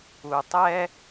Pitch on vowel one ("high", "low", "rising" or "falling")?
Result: low